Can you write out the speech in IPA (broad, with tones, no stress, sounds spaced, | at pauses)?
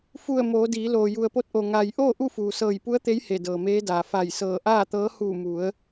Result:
f u˧˩ ə̯ m oː˩˧ d iː˩˧ l oː˩ j u˩ ə̯ p o˧ t̚ ʔ o˩ ŋ a˩ j ʔ oː˥˨ ʔ u˥˨ f uː˩ s ɤː˧˩ j p u˧˥ ə̯ t̪ e˧˥ j h e˧˩ d ɤː˩ m eː˧˥ d aː˩ f a˧˩ j s ɤː˧˩ ʔ aː˥˨ t̪ ɤː˧˥ h uː˧˩ m u˩˧ ə̯